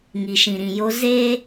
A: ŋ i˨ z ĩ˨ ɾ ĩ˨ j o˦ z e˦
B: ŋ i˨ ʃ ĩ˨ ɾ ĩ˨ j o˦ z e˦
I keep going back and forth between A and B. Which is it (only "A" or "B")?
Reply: B